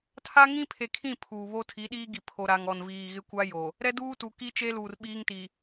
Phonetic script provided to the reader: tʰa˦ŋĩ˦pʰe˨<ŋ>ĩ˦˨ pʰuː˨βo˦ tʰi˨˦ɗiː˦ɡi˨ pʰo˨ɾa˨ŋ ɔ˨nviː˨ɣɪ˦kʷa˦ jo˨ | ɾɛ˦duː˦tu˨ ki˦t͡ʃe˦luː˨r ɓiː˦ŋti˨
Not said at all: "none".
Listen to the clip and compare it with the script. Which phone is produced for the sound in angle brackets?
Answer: kʰ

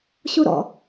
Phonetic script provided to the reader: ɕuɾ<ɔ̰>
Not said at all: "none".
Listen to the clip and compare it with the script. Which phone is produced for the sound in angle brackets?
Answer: ɔ̰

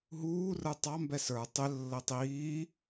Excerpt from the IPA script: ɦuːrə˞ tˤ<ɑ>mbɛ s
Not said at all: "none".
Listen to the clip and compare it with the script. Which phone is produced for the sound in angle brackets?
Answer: ɑ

